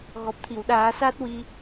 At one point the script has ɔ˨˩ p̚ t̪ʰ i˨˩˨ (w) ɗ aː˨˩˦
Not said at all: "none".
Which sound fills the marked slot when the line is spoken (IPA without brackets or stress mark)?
w